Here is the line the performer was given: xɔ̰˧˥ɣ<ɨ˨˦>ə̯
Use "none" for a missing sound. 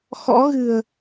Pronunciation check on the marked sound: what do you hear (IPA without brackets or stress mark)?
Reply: ɨ̤˨˩